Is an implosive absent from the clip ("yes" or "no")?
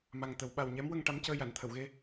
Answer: no